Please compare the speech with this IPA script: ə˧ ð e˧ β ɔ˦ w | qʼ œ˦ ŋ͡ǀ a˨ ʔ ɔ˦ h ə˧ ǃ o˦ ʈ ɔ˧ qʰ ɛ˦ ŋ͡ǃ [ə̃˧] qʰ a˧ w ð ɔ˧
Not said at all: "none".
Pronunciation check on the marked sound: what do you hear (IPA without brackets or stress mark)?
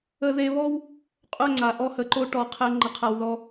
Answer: ə˧